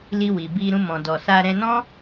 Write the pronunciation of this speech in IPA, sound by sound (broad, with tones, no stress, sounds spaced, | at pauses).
l i˧ w i˨ b i˧ ɾ ũ˧ m ɔ̃˨ d ɔ˨ s a˧ ɾ ɛ̃˧ n ɔ̃˦